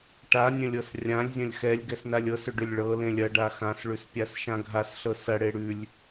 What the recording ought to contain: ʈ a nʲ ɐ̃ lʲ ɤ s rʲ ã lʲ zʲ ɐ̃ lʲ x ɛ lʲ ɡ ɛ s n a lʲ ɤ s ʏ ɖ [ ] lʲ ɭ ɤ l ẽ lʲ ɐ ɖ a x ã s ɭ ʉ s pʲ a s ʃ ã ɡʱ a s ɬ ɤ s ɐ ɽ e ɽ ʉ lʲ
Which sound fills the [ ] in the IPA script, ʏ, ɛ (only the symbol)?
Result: ʏ